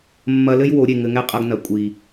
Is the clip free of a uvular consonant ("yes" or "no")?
no